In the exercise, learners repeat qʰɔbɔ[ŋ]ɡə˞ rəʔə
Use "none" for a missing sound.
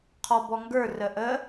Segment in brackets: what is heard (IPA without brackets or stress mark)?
ŋ